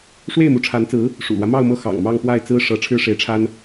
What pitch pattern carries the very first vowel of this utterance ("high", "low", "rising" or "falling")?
falling